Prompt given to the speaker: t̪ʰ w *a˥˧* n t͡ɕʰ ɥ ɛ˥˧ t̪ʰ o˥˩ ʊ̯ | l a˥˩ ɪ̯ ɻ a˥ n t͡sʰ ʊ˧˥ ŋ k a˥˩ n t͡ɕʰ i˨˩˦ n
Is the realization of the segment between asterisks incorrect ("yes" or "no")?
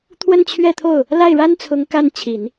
yes